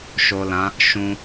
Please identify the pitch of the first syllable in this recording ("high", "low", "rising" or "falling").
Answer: low